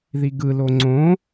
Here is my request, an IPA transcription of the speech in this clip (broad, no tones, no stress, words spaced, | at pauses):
ðiɡɯ loŋ͡ǀõ